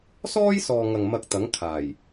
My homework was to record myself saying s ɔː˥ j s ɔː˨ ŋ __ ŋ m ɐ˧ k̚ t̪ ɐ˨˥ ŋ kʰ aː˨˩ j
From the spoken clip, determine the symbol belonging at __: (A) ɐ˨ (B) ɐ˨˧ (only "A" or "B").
A